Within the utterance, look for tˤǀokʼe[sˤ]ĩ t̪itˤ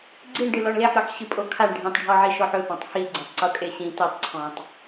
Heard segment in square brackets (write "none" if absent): ɕ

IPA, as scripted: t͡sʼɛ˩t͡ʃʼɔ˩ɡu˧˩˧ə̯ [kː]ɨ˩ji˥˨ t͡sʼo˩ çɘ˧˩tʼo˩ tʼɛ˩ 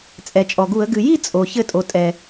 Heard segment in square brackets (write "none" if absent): ɡ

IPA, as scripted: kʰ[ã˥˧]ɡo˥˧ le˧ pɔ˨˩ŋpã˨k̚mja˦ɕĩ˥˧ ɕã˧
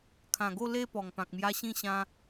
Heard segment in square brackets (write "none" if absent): ã˨˩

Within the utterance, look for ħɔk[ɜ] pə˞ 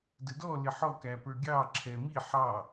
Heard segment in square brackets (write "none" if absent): æ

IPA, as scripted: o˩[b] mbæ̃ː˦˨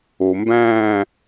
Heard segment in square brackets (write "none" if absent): none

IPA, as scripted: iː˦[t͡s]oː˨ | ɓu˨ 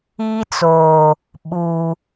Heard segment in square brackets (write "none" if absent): t͡s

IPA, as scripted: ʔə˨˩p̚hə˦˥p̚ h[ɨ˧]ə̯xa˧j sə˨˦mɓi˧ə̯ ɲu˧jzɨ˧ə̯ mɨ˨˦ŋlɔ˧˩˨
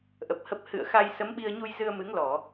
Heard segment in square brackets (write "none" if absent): ɨ̰˧˨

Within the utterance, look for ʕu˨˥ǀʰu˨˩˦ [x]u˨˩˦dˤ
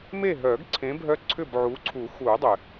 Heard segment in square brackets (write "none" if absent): x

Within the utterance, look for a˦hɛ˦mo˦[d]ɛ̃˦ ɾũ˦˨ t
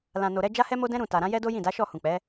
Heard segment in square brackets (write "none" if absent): d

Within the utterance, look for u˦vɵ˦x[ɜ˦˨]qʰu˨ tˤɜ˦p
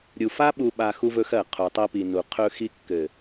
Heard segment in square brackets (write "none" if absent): ɜ˦˨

